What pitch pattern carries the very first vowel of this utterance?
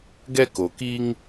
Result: high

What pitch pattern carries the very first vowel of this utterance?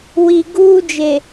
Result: low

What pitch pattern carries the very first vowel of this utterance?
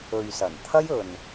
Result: low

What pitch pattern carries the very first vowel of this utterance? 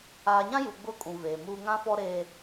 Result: low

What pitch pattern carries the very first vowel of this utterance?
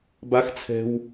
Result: high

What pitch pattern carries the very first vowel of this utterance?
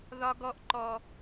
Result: high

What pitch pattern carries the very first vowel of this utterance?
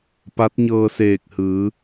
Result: rising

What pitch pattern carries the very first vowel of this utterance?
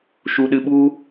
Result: low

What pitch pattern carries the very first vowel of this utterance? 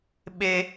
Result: high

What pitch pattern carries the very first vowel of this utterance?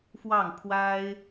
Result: falling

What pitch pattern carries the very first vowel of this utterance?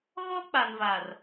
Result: high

